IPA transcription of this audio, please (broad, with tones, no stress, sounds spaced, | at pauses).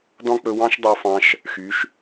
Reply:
d ɔ̃˥ k͡p ɵ˧ w ɑ̃˥ ʃ dˤ ɑ˧ f ɑ̃˧ ʃ | x y˩˧ ʃ